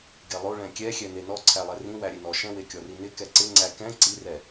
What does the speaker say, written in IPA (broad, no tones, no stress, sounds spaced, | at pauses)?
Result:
ɡ e lˠ o ɭ ɛ̃ kʲ ɛ xʲ ɛ n e n ɔ ǀʰ æ lˠ ɛ r ĩ w æ ɾʲ e n ɔ ʃ ɛ̃ w e kʲ ɔ r i n ɪ k ɛ ǀ ɪ ŋ͡ǀ æ k ɛ̃ ǀ i r ɛ